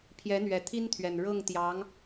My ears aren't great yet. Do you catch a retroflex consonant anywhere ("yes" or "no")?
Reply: yes